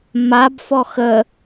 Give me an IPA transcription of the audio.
m a b f ɔ x ə

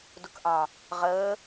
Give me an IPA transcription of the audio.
d ʊ k ʔ ɑ̃ | ʁ əː

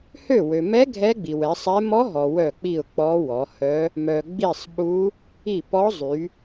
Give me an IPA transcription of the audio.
h ø˦˨ w ø˨ m ɛ˦˥ ɡʱ ɛ˦˥ ɡ͡b i˨ w ɛ˨˦ sˤ ɛ˦˥ m ɔ˦˥ ɦ ɔ˨ w œ˦˨ k͡p i˦˨ ʊ̯ k͡p ɔ˦˥ w ɔ˨˦ h œ˦˥ | m œ˨ ɡ͡b i˦˨ sˤ ɓ u˦˥ | i˦˨ p ɔ˦˥ zˤ y˨˦

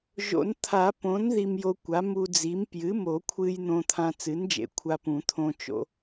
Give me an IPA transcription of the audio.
ʒ o̰˨˩˦ n t̪ʰ a˨˩˦ p õ˩˥ n ð i˧ m j o˧ kʷ a˩˥ m u˧ d͡z i˩˥ m p j ɨ˩˥ m o˨˩˦ kʷʰ ɨ˧ j n̪ õ˧ t̪ʰ ã˧ t͡s ɨ˩˥ n d͡ʒ ḛ˨˩˦ kʷʰ a˧ p ũ˨˩˦ t̪ʰ õ˧ t͡ʃ o̰˧

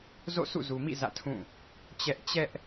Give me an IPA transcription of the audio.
z o̰˦˨ sʰ ṵ˦˨ z u˨ m ḭ˦˨ z ä̰˦˨ tʰ ũ˦˨ | t͡ɕ ɛ˦ ʔ t͡ɕ ɛ˦ ʔ

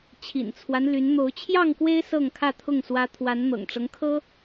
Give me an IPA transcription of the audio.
t͡ɕʰ ḭ˨˩ n t͡sʰ w a˦ n l y˨˦ n n̪ o˨˦ ʊ̯ t͡ɕʰ j ɑ˥˨ ŋ k w e˦ ɪ̯ s ɤ˥˨ ŋ kʰ ä˥˨ t̪ʰ ʊ˥˨ ŋ s w ä˦ t̪ʰ w a˨˦ n n̪ ɤ̰˨˩ ŋ ʈ͡ʂ ɤ˦ ŋ kʰ ɤ˦

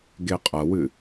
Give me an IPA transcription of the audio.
ɡ e qʼ ɐ w ɨ

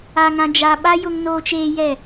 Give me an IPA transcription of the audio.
a˨ ŋ ã˨ d͡ʒ a˨ ɓ a˦ j ʊ˦ ŋ n oː˦ t͡ʃ eː˦ j ɛ˦˨

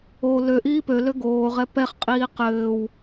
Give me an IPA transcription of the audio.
o l ø ʔ iː p ø l ø ɡ oː ʁ ɛ p ɛ χ qʼ iː q ɘː w

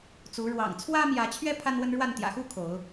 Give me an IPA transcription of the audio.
t͡s u˨˦ ɻ w ɑ̰˨˩ ŋ t͡sʰ w ä˦ m j ä˨˦ t͡ɕʰ ɥ ɛ˦ pʰ a˦ n w ə˦ n ɻ w a˥˨ n t̪ j ä̰˨˩ x u˥˨ kʰ o˨˦ ʊ̯

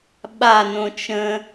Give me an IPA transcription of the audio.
ɓ a n õ t͡ʃ ə̃

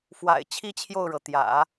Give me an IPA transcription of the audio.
f w a̰˨˩ ɪ̯ t͡ɕʰ i˥ t͡ɕʰ j o˥˩ ʊ̯ ɻ ɤ˩ t̪ j ä̰˨˩˦

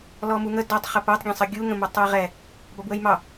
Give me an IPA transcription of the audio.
l ɔ m u ŋ ə d ɔ tˤ χ ɛ p ɜ tˤ ɡʲ ə̃ sˤ ə ɡʲ u ŋ ə̃ m ʌ tˤ ɛ ʁ ɛ | b ɒ b w ə j m ɑ

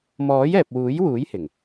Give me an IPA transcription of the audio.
m ɔː˨˥ j ɛː˨ p̚ w uː˨˥ j w uː˨˥ j h ɪ˨˩ ŋ

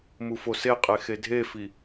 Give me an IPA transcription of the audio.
m u f o s e qʼ e x e dʱ e f i

